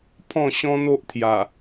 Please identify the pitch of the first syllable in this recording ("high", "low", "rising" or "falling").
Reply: falling